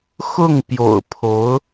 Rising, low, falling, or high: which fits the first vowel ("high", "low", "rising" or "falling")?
falling